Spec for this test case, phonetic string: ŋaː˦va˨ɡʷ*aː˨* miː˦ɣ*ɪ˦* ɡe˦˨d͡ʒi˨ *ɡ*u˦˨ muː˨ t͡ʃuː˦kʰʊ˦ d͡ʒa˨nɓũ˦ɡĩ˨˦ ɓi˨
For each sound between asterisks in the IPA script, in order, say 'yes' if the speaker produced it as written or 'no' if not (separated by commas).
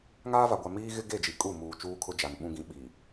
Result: no, yes, no